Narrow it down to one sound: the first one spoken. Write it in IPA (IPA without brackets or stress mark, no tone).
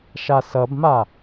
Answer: ʃ